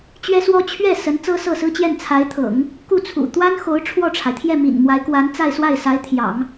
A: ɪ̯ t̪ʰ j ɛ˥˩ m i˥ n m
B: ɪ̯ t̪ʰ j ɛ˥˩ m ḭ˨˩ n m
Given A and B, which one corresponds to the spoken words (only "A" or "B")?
B